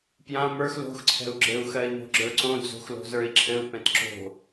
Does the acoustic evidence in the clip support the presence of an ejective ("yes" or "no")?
no